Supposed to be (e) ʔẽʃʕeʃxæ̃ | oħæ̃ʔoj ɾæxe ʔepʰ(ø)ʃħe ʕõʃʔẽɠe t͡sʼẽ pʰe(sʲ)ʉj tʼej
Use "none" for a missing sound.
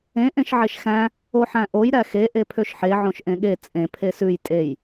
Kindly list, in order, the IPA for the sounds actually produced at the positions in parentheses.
ẽ, ø, s

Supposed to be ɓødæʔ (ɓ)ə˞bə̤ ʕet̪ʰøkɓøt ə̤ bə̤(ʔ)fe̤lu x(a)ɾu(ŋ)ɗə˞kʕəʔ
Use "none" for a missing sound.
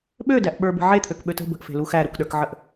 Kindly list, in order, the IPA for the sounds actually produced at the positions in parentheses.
ɓ, ʔ, æ, k

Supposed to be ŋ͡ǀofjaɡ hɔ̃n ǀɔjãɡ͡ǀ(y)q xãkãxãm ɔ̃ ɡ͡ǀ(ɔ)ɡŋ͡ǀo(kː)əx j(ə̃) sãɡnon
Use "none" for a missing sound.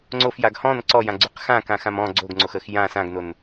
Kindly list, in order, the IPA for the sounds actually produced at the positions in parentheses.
y, o, x, ã

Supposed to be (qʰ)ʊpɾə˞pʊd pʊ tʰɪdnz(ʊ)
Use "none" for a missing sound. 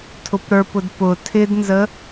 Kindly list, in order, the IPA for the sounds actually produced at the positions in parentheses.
tʰ, ə

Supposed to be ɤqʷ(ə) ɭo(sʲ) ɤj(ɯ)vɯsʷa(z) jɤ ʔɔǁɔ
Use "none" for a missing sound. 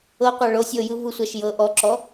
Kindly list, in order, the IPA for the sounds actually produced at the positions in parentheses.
a, sʲ, ɯ, ʃ

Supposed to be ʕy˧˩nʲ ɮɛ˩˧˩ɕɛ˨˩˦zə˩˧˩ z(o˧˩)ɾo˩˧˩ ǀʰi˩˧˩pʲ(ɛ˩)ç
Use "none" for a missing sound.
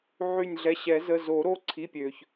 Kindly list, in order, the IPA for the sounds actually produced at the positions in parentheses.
o˨˩˦, ø˩

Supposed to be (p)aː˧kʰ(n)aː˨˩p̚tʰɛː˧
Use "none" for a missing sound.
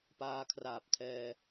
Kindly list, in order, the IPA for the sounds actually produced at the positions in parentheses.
p, r

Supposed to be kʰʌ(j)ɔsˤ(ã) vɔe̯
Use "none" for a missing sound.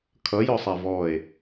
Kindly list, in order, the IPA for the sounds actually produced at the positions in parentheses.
j, a

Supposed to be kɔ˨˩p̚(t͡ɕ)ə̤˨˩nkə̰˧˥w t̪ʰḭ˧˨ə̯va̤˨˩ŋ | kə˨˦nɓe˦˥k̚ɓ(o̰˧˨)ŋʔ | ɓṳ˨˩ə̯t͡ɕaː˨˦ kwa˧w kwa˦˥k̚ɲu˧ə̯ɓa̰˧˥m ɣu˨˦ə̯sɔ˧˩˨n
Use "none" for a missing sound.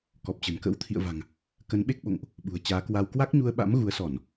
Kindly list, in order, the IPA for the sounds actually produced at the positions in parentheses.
t͡ɕ, o̰˧˨

